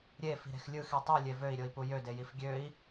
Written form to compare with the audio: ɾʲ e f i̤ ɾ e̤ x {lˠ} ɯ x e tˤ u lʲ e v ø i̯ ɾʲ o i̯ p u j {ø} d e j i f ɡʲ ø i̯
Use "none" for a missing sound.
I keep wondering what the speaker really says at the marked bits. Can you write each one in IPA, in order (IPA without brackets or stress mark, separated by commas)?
lʲ, ø